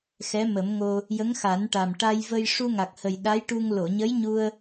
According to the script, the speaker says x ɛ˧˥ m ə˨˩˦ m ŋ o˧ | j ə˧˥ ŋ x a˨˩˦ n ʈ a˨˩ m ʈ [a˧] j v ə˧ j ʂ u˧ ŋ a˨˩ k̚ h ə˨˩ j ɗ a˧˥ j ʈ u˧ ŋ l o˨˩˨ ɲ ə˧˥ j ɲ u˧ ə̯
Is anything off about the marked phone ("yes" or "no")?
no